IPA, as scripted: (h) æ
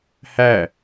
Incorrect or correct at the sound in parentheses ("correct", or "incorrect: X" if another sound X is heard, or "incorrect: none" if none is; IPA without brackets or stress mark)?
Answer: correct